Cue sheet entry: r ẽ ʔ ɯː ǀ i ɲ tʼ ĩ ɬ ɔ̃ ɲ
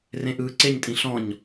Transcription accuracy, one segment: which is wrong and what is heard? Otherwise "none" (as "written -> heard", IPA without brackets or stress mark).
i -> e